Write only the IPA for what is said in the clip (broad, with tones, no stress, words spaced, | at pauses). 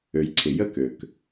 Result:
ø˩jǀʰɪ˩ jə˥˧kø˩k